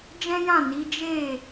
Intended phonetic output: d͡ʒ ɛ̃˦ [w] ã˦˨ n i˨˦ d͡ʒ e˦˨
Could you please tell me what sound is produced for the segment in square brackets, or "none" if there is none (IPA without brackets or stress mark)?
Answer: j